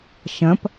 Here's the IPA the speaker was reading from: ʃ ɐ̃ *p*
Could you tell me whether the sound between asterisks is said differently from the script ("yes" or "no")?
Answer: no